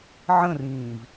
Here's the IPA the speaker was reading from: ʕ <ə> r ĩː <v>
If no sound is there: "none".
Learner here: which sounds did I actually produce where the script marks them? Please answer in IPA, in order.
ə̃, v

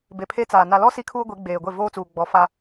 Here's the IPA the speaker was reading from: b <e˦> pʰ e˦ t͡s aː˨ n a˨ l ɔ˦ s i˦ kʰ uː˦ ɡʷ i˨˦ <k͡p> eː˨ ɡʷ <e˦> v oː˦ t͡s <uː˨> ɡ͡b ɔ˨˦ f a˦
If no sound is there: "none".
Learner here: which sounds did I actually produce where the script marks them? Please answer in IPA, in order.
e˨, ɡ͡b, e˦˨, uː˨

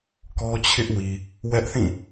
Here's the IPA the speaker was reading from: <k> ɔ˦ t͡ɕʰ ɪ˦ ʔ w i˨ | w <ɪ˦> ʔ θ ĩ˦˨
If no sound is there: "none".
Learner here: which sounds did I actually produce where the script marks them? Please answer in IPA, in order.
k, ɛ˦

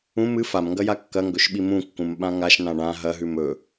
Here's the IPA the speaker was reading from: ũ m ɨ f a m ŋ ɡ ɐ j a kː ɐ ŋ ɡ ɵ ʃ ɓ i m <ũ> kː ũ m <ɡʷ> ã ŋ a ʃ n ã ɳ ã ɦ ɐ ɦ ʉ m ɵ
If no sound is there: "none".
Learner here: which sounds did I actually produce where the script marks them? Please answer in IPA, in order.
ũ, ɓ

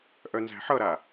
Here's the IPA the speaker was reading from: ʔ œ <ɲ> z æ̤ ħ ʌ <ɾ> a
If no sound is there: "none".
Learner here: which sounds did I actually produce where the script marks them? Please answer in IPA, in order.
n, ɾ

